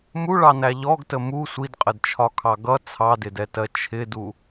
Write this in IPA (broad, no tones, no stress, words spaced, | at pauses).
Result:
muɭɑnæ ʎɔɡtə mu sʷidqʼədt͡ʃʰɒkʰɑ ɡʌ t͡sʰɑdɪdɛtɜ t͡ʃʰɪdu